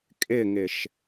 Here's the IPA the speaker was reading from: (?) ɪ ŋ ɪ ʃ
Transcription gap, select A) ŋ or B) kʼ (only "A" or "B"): B